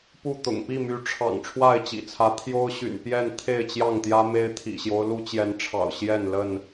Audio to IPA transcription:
p u˥˨ t̪ ʊ̰˨˩ ŋ p i˥˨ m y˨˦ ʈ͡ʂʰ ɑ̰˨˩ ŋ ʈ͡ʂʰ w a˥˨ ɪ̯ t͡ɕ ḭ˨˩ t͡sʰ ä˨˦ t̪ʰ j o˦ ʊ̯ ɕ y̰˨˩ n p j ɛ˥˨ n t̪ʰ e˥˨ ɪ̯ t͡ɕ j ɑ˥˨ ŋ t̪ j ä˦ m e˦ ɪ̯ t̪ʰ ḭ˨˩ ɕ j o˦ ʊ̯ l u˦ t͡ɕ j ɛ˨˦ n ʈ͡ʂʰ ɑ̰˨˩ ʊ̯ ɕ j ɛ˥˨ n l ə˥˨ n

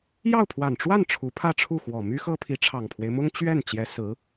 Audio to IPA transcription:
j ɑ˥˩ ʊ̯ pʰ w a˨˩ n ʈ͡ʂ w a˥˩ n ʈ͡ʂʰ u˧˥ pʰ ä˥˧ ʈ͡ʂʰ u˥˩ x w ɔ˨˩ m y˥ x ɤ˥ pʰ i˧˥ ʈ͡ʂʰ ɑ˨˩ ŋ pʰ w e˦ ɪ̯ m ʊ˥ ŋ t͡ɕ ɥ ɛ˥˩ n t͡ɕ j ɛ˧˥ s ɹ̩˧˥

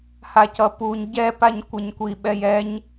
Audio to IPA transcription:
h a c ʌ p u ɲ ɟ ɛ p a ɲ kʷ ʌ ɲ kʷ i ɓ ɛ j ɛ ɲ

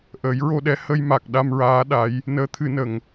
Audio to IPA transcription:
ʔ əː˨˩˦ j ɹ o˧ ɗ ɛ˧˥ h ə˧ j m a˨˩ k̚ ɗ a˧ m ɹ aː˧˥ ɗ a˧˥ j | n əː˧˥ t̪ʰ ɨ˨˩˦ n ə˨˩ ŋ

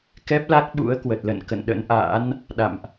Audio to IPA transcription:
k ɛ˦˥ p̚ l a˦˥ k̚ ɓ ṵ˧˥ ə̯ k w ə˨˩ t̚ l ə̰˧˨ n k ə̰˧˨ n ɗ ə̰˧˥ n ʔ a̰ː˧˥ n | ɗ a̰˧˨ m ʔ

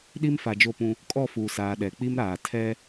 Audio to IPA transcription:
ɗ i˦ m f a˨ d͡ʒ o˦˨ p ũ˦ | kʼ ɔ˦˨ f uː˨ s aː˨ ɗ ɛ˨ k͡p i˦ m ɾ aː˨ tʰ ɛ˦

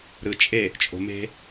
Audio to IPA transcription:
ɾ ɯ t͡ʃʼ e | t͡ʃʼ o̤ m e̤

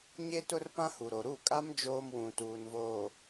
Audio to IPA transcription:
ɲ e˦ t ʊ˦ r p ã˦ h u˨ ɾ o˨ ɾ u˦˨ kʼ a˦ m d͡ʒ oː˦ m w ũ˨ t uː˨ n v oː˨

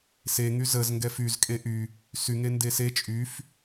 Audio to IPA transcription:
s e ŋ y z ə z ŋ ɡ ɛ f y z kʼ e ʔ y | s y ŋ e n d e s e t͡ʃʼ y f

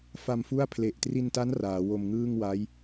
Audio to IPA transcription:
f a˧ m f u˥˩ a̯ pʰ l e˨˩ ʔ t r i˧ n t a˦˥ n r aː˩˦ w o˧ m ŋ ɯː˥˩ ŋ w a˦˥ j

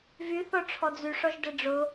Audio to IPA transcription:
v y θ ɔ ʈ͡ʂʰ ɔ d͡z y ʂ ɔ ʒ d ɛ ɖ͡ʐ ʊ

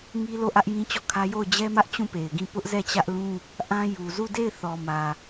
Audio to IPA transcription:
ŋ i˦ l o˦˨ ʔ ä˦ ʔ j ĩ˦ t͡ɕ ɔ˦˨ kʰ ä˦ j o˦˨ ʊ̯ d͡ʑ ɛ˦ m ä˦ ʔ t͡ɕ ũ˦˨ p e˨ ɪ̯ ɡ ĩ˦˨ p ʊ˦ ʔ z ɛ˦˨ t͡ɕ ä˦ ʔ l ũ˦ | ʔ ã˦ j u˨ z u˦˨ d e˦˨ ɪ̯ θ ɔ˨ m ä˨

